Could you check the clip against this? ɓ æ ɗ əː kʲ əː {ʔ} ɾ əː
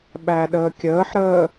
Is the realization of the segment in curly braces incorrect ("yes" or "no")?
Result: yes